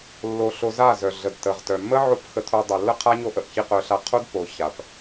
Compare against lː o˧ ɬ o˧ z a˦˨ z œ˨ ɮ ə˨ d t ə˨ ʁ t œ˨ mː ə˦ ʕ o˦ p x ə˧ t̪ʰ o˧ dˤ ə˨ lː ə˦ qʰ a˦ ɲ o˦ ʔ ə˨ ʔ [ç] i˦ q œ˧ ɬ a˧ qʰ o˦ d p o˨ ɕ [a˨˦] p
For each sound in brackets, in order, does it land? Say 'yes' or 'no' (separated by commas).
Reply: yes, no